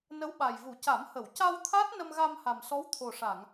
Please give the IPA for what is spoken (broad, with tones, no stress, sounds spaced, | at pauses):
n ə˧˥ w ɓ a˨˩ j v u˨˩˦ c a˨˩˦ m h ə˨˩˨ w c a˧ w t̪ʰ a˦˥ t̚ n ə˧ m ɣ a˧ m h a˨˩ m s ɔ˧˥ w t̪ʰ o˨˩ ʂ a˨˩˨ ŋ